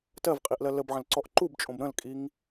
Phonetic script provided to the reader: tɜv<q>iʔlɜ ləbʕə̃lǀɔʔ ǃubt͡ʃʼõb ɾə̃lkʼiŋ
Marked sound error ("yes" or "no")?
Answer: yes